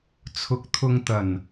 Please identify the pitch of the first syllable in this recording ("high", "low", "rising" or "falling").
low